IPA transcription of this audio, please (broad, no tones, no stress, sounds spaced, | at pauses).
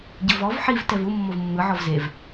ɟ ɤ v ɔ v ħ i v t ɛ v u mː o v mː ɯ ʕ ɔ v z e v